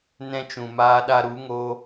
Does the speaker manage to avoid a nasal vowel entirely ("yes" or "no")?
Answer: no